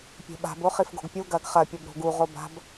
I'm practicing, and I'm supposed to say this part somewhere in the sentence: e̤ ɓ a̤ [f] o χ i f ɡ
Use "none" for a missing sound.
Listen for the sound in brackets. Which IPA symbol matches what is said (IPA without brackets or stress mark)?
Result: b